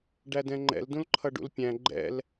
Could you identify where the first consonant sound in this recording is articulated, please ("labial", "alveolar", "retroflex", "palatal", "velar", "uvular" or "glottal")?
retroflex